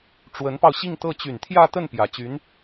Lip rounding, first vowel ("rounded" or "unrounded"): unrounded